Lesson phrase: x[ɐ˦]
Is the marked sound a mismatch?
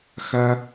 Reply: no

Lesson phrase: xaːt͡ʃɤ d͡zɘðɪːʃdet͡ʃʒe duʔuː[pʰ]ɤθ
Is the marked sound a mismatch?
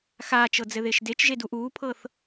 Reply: no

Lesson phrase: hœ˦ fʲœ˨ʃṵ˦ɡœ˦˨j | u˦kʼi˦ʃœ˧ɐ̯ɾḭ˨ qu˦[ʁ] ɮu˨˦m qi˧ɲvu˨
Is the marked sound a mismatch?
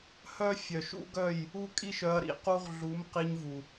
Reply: no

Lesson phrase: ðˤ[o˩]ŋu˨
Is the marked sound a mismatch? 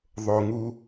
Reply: no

